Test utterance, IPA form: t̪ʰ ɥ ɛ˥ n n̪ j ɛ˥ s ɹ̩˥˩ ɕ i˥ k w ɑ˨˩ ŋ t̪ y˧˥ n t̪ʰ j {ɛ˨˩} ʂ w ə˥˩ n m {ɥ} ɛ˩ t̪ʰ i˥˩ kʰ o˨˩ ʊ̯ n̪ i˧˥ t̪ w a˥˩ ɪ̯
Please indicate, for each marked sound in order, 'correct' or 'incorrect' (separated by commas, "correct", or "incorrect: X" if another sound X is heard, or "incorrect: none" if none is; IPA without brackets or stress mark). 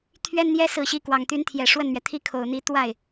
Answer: correct, correct